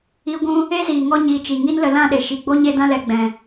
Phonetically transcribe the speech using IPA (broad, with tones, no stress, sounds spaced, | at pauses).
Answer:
i˧ ɡʷ ũ˧ | e˦ z iː˨ ŋ ɔ˧ ɲ iː˨ t͡ʃ i˨ ŋ i˦ n l ə˧ l ã˦˨ ɗ e˨ ʃ i˨ ɡ͡b o˦ ɲ e˦ d ã˦ l ɛ˨ ɡ͡b ɛ̃˨